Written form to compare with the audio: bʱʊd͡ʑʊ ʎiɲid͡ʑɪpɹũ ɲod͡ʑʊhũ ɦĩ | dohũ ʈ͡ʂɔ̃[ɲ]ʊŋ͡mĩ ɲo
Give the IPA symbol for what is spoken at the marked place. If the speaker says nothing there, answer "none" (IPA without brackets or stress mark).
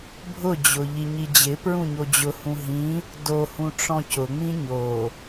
c